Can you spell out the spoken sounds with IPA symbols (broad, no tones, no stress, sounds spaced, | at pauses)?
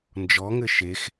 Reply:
n d͡ʒ ɔ ŋ ɘ ʃ e x